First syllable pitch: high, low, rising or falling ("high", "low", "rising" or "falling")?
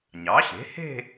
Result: rising